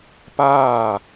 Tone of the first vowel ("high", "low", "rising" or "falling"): falling